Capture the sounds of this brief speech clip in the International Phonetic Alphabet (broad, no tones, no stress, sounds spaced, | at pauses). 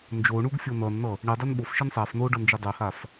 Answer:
n d͡ʒ o ɳ u ɡ fʲ o n ʌ n n̪ ʌ | ɳ i dˤ i n ɓ o f ʃ i n sˤ a f n o ɖ ʌ n d͡ʒ i dˤ ɛ h a f